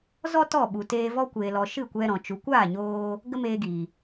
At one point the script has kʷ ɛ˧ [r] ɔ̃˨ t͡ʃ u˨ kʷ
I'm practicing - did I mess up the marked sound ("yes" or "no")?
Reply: yes